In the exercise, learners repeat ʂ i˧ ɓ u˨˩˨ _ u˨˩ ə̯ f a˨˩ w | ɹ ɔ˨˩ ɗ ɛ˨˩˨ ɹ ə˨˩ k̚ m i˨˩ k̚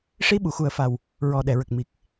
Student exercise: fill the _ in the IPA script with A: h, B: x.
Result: B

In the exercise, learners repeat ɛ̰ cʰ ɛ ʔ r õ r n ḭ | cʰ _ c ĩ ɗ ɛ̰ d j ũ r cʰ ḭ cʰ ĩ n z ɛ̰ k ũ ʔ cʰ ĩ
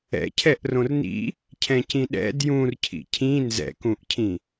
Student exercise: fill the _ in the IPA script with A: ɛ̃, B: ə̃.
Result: A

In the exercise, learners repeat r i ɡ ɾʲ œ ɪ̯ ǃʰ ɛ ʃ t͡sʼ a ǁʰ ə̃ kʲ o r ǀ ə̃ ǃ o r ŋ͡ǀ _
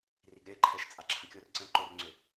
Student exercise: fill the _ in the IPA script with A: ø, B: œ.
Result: A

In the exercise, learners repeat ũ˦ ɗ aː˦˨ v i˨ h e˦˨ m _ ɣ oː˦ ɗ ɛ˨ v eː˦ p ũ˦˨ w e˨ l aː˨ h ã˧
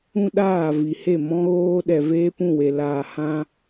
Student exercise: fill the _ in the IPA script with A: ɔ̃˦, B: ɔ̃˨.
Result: A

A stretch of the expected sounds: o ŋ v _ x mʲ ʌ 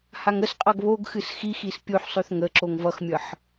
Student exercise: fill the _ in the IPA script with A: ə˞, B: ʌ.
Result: B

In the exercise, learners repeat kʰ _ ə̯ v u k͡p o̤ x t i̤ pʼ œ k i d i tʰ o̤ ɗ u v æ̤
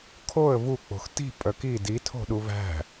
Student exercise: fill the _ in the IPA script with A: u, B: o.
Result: B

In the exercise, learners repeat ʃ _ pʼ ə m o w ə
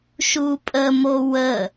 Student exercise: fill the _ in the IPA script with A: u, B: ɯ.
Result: A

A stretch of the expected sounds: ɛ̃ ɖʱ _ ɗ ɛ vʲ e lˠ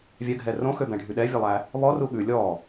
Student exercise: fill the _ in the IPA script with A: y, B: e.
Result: A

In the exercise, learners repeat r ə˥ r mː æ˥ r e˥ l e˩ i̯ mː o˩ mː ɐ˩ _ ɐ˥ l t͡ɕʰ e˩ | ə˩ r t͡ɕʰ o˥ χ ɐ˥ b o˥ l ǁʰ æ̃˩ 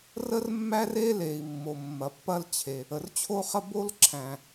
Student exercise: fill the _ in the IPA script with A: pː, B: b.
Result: A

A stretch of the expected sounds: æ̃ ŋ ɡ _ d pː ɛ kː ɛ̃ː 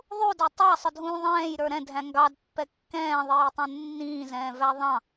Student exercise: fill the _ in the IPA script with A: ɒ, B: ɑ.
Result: B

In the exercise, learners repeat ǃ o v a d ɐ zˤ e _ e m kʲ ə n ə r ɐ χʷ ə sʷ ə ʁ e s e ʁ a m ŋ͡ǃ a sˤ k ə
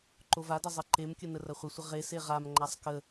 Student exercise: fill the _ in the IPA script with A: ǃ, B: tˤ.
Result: A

